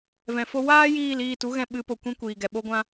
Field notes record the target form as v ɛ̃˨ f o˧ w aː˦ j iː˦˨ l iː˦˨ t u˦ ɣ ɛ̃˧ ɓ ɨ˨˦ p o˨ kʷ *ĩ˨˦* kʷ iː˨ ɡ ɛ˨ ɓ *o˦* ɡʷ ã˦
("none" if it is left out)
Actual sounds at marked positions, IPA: ĩ˦, o˦

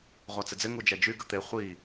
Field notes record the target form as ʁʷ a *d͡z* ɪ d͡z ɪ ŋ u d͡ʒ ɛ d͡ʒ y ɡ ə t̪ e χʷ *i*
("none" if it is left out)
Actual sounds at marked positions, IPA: t͡s, i

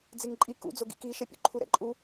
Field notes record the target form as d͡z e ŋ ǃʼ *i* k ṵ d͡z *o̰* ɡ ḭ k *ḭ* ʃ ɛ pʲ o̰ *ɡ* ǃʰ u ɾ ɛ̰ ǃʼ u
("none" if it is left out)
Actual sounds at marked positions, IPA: i, o, i, none

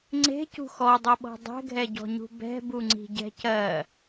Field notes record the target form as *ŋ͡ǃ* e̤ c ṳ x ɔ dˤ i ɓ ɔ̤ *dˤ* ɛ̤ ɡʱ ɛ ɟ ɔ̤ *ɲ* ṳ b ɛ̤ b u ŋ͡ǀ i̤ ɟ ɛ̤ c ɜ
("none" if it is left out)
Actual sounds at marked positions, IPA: ŋ͡ǀ, dˤ, ɲ

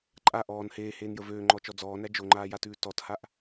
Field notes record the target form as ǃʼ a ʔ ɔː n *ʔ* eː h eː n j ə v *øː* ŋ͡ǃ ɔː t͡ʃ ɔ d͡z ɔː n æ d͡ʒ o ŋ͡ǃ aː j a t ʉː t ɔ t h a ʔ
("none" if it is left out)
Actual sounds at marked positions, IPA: h, øː

